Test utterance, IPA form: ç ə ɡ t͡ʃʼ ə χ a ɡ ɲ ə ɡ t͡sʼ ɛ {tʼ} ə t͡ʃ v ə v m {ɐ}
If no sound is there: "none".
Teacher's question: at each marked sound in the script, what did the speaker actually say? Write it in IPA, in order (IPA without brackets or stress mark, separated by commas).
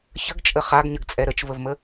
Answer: ɾ, ə